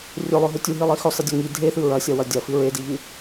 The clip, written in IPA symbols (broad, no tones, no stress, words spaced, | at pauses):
rʲɵlˠɵɦɵ tʲuɦilˠi xɵsˤidʲo ŋi dʱeθɨ ɹɐsʲɐwɐ dʲɐfɨ ɹediʎɨ